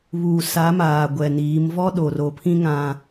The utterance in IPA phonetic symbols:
βuː˨ sa˨˦maː˨ ɡʷɛ˨niː˨˦m vɔ˦ɗo˨ro˨pʰĩ˦ ŋã˦

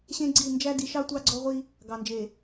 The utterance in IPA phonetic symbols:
ɕẽ˦ɡ͡ǀi˦˨ nd͡ʒæ˦di˨˦ʃɑ˦ tʷɑ˦ɡ͡ǀɔ˦ʁʷi˦ | ɡɑ˨nd͡ʒe˨

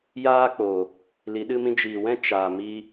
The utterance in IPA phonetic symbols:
jaː˦k͡poː˨ | li˨˦ɗɨ˦mĩ˦ d͡ʒiː˨wɛ̃˦ t͡ʃaː˨mi˧

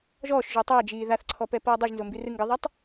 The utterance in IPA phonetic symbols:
ʒɔːʃʒo tˤʌːd͡ʒiː ðaθǀʰɔ pɛpʌːdˤɯʒnzo mbirɨŋɡɨðˤɛtˤ

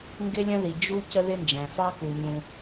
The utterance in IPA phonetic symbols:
ŋɡɪ˥lʲə̃˥ði˩ d͡ʒu˥ cə˥ðɪ˥nd͡ʒæ̃˩fɑ˥ ku˩ɲũ˩

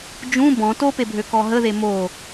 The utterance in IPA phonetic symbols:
d͡ʒũ bɔ̃ topebʱø kɔɦə ðemo

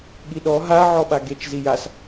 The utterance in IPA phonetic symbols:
ɠiɗɔ ɦa ʕɔɓaɡet͡ʃ zijas

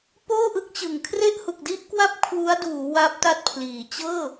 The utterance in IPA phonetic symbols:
poː˥˩ʔɯ˦˥k̚t͡ɕɯ˨˩ŋ kʰre˥˩ʔhu˨˩k̚di˥˩ʔkwa˥˩p̚ kʰwu˦˥a̯ duː˩˦ wa˦˥p̚ta˥˩t̚pʰliː˩˦ t͡ɕɤː˥˩

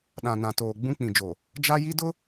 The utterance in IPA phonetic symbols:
ɗã˨nã˨toː˨ ɡ͡bũ˦k͡pĩ˨ d͡ʒo˨ | d͡ʒa˦ji˦dʊ˦

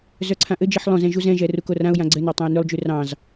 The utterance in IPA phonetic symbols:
zœǀʰãʔɘd͡ʒiħ lˠõzɛ̃ ʒuzɛ̃ʒɛ rukorãʊ̯jã ɡ͡ǀɘnɑ tˤãɪ̯nʉlˠd͡ʒʉ rɑ̃z

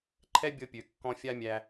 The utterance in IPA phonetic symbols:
ǃʰɛ˦bʲɤ˧pʲø˨ kːɔ̃˧fʲa˦mʲæ˧

